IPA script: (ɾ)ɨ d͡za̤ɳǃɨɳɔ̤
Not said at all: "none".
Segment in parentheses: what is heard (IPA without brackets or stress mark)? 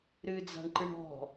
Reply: ɾ